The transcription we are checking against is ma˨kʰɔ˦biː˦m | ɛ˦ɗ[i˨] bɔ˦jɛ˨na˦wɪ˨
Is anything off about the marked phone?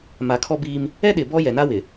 yes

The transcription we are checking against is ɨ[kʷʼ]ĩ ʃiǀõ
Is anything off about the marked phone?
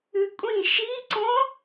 no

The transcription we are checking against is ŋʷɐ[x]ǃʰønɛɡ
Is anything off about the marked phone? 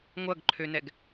yes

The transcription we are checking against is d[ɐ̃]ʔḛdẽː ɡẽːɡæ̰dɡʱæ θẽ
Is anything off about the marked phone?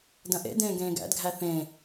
no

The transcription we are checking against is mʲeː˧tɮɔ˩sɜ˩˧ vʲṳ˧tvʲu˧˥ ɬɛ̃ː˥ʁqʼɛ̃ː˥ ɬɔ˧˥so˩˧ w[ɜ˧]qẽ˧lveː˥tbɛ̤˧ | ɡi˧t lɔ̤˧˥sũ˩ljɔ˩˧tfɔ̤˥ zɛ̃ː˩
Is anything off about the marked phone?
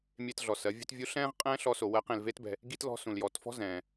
yes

